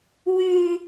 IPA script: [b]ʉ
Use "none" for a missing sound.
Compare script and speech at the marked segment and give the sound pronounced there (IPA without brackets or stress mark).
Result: w